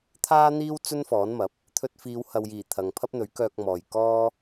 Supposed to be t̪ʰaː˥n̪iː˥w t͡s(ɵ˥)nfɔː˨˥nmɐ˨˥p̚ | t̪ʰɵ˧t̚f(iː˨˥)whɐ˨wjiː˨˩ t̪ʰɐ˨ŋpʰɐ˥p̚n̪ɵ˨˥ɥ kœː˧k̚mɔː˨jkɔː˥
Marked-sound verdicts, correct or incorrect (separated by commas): correct, incorrect